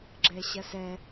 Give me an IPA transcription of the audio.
ɡ͡ǁɛɕɐsɛ

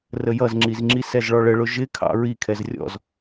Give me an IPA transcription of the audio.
rəjʌzŋ͡ǁizŋ͡ǁi sɛzɭɔɭəɭʊ ʒɪkʰɑ̰ ɹi kʰɛzrʲɔ̰z

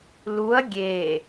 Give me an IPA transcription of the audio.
luɐ̯ ɡʲe

